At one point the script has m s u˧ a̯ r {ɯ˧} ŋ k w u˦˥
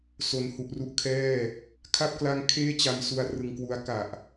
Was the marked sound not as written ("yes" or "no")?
no